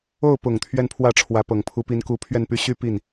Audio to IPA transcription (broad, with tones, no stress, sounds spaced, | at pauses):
o˥˩ ʊ̯ p ʊ˨˩ ŋ t̪ʰ ɥ ɛ˥˧ n pʰ w ä˥˩ ʈ͡ʂʰ w ä˧˥ p ɤ˨˩ ŋ pʰ u˧˥ p i˧˥ n k u˧˥ pʰ ɥ ɛ˥˧ n p y˥˧ ɕ y˥˧ p i˥˩ n